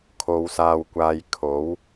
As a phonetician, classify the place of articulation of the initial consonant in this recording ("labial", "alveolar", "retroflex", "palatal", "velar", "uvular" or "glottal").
velar